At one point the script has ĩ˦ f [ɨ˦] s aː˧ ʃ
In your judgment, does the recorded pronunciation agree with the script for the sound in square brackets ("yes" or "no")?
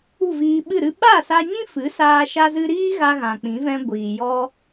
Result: no